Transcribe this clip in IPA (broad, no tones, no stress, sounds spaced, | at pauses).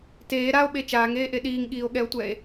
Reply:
t eː ɾ a o̯ ɓ e t͡ʃ aː ŋ eː ʔ e ɗ iː ŋ ɠ iː o̯ ɠ ɛ o̯ tʷ ɛː e̯